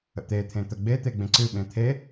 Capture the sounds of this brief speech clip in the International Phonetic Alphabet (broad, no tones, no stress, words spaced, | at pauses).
ə̰t̪e t̪ʰẽt̪ə ɡ͡bet̪e ɡ͡bẽǀɨɓẽ t̪ʰe